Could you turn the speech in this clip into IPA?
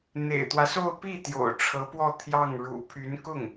n̪ ḛ˨˩ ɪ̯ t̪ w ä˦ s o˥˧ ʊ̯ p i˥˩ t̪ j o̰˨˩ ʊ̯ ʈ͡ʂʰ ɤ˧˥ p w ɔ˥˧ t̪ʰ j ɑ˥˩ ŋ ɻ ṵ˨˩ pʰ y˧˥ n k ʊ˥˩ ŋ

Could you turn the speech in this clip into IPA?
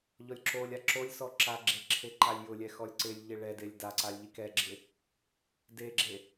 ʎ ɔ lʲ ǁ o lʲ a ǁ o lʲ s ɔ ǁ a ɡ͡ǁ e ǁʰ e ǃ a lʲ j ʊ lʲ ɛ x ɔ lʲ ǀ ɪ lʲ ʎ ɪ ɭ ɛ d e lʲ d a ǀ a lʲ ʎ i k ɛ ɡ͡ǁ ɪ | d e ɡ͡ǁ e

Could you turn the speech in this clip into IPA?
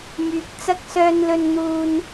m yː˨ k̚ t͡s ɐ˥ k̚ s œː˧ n l ɵ˧ n n̪ uː˧ n

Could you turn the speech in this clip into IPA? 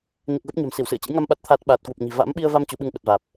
n i˨˩ k̚ ɣ ə˦˥ p̚ ɲ a̤˨˩ m s i˧˩ w s ɨ̰˧˨ ə̯ t͡ɕ ɨ̰˧˥ j ŋ a˧ m ɓ a˦˥ t̚ t̪ʰ aː˦˥ t̚ ɓ aː˨˩ t̚ k w u˨˩ p̚ ɲ i̤˨˩ v a̰˧˥ m ɓ i˧ ə̯ v a˧ m t͡ɕ u˨˦ ɓ ɨ˧ ŋ ɓ ə˨˩ t̚ v aː˨˩ p̚

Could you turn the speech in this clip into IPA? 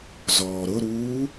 z ɔː ɾ ʊ ɾ uː

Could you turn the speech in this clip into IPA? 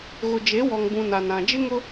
ɣ ʊ˨ d͡ʒ e˨˦ w ɔ˨ ŋ b ũ˨ n a˨ n ã˨ d͡ʒ ɪ˦ ŋ ʊ˦

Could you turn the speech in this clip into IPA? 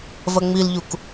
v ɐ ŋ͡m i l ʎ u k

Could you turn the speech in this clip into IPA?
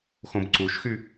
x õ b ǀ u ʃ x y

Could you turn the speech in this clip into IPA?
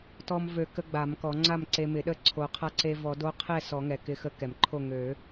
t ɔ˧ m v ø˨˩˦ k ə˧˥ ɡ͡b a˨˩˦ m k ɔ˨˩˦ ŋ͡ǀ a˥˨ m ǀ e˧ m ɪ˨˩˦ ɗ ə˥˨ ǀʰ o˨˩˦ qʰ a˧˥ ǀ e˧ v ɔ˨˩˦ d o˧˥ qʰ ɛ˥˨ s ɔ˨˩˦ ŋ ɛ˩ k ɪ˧˥ x ə˧˥ k ɛ˩ m ǃʰ o˥˨ ŋ ø˨˩˦

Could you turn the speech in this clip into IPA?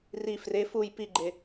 r i f r e f u j p i ɡ͡ǃ e

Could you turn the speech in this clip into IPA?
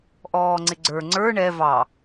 ʔ ɔː ŋ͡ǀ ɪ ɡ͡ǀ ə˞ ŋ͡ǀ ə˞ ɳ ɛ v ɑ

